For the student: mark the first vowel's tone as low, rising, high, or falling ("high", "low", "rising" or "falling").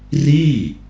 falling